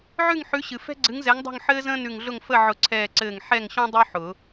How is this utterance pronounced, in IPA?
ʕ ʉ˥˨ ŋ ħ ʉ˨˥ ɕ ɨ˩ f ɛ̤˥ ɡ͡ǀ ɨ˨˥ ŋ z ɛ˨˥ ŋ dˤ o̤˥˨ ŋ ħ ɘː˥ z ə̃ː˥ n ʉ˧˩ ŋ ɮ ʊ˥˨ ŋ f ə˥˨ ʕ ʊ˧˩ ǀʰ ɛː˧˩ ǀ ɘː˧˩ ŋ ħ ɛ˥˨ ŋ ɕ õ˥ dˤ ʉ˥ ħ ʊ˨˩˦

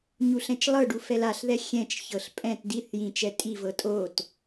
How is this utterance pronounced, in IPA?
ɲ u ɬ ɛ̃ t͡ʃ lˠ ɤ ɖ u f ɛ l a ɬ ð ɛ xʲ ɛ̃ t͡ʃ ç ɤ ɬ pʼ ɛ̃ t d i θ j ĩ t͡ʃ ɛ tʼ i v ɤ tʼ o t

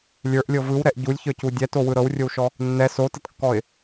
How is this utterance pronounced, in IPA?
lʲ ə˞ ʔ lʲ ɤ v ɯ w ɾ ɛ ʔ ɟ u lʲ ç ə˞ c u dʲ ɛ t o w ɯ ɾ ɤ w rʲ o w ʃ ɔ | nː ɛ s o t ə t kː ɔ ɪ̯

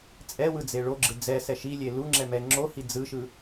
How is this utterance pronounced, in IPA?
t͡sʼ ɛ w ɯ d͡z e ɭ o ɡ͡ǁ ɯ d͡z ɛ s ɛ ʃ i lʲ e l u ŋ͡ǁ ɛ m ɛ ŋ͡ǁ o h i d͡z ɯ ʃ ɯ

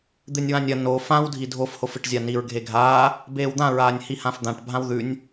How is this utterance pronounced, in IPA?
d̪ ɨ nʲ w ã nʲ ɐ n o f ã w dʱ i dʱ o f h o f ɨ ʈ zʲ a n i ɹ ɡʱ e ɡʱ aː | b eː w d̪ ã ɹ aː nʲ h i h ã f d̪ ã ʈ bʱ ã w ð ʉ nʲ

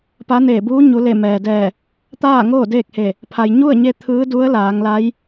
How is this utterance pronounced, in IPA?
p a˧˥ n eː˧˩ b uː˧˥ ɲ u˩˧ l e˧˩ m ɛː˩ d ɛː˧˩ | t̪ aː˥˨ ŋ oː˥˨ d eː˥˨ k̚ h e˧˩ | pʰ a˩ j ɲ u˥˨ ə̯ ɲ e˧ t̪ʰ ɯː˧˥ d u˧˥ ə̯ l aː˩˧ ŋ l a˧˥ j

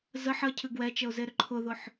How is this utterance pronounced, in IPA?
z ə ħ ə cʰ ɨ ɡ w ɛ t͡ʃ ə ʊ̯ z e ɾ ʏ ǃʰ ʊ ð ʊ ħ

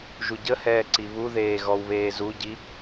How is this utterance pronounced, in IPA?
ʒ u ɟ ə h ɛː ǀ i β u ð eː ɣ ɔ w β eː z u ɟ i

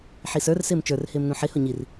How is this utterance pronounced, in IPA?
ħ i s ə˞ r s ɪː m t͡ʃ ə˞ r h ɪː m n ũ ħ ɪ h ʊ ɲ i r

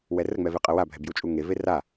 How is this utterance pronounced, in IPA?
w ɛ r ə ŋ͡m ɛ v e qʼ ə w a bʱ ɛ b j u t͡ʃʼ u ŋ e v e r a

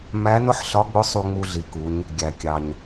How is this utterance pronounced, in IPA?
m æ˧˥ n ʊ˥ ħ ɬ ɒ˧˥ ɡ͡b ʊ˧˥ sˤ u˧ ŋ͡m u˧ ɮ i˩˧ k u˩˧ ɲ | ɡʲ æ˩ kʲ ɑ˩ ɲ

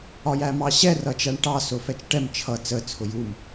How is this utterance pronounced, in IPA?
ɒ j æ m ɑ ɕ ɛ r ʌ t͡ʃ æ ɳ ʈ ɑ s ʊ f ɛ t͡ʃ ʈ ɛ m t͡ʃʰ ʌ t͡s ə t͡sʰ ʊ j u m

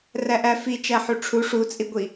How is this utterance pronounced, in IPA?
r æ ʔ æ f i t͡ʃ æ ħ u ʈ͡ʂʰ u ʂ u t͡sʼ i ɡʷ i

